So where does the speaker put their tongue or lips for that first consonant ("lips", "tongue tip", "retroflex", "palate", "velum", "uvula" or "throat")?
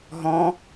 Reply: throat